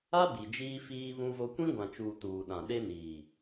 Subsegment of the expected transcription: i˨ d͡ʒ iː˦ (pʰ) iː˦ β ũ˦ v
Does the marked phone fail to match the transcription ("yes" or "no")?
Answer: yes